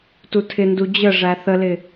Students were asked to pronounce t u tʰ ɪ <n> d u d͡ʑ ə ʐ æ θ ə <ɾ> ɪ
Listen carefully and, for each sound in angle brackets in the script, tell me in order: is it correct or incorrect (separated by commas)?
correct, incorrect